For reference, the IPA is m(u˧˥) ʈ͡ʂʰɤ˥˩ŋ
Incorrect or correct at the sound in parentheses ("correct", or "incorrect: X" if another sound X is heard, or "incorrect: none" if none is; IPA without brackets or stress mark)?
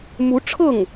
correct